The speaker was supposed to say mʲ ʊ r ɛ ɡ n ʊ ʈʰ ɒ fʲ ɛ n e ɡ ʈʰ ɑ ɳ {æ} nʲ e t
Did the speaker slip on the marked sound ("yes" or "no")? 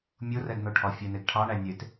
no